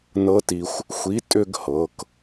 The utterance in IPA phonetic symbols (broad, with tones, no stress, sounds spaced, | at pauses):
n ɤ˦˥ t i˧ xʷ | xʷ i˨˥ tʼ ʏ˥˧ ɡ h ɤ˩˧ k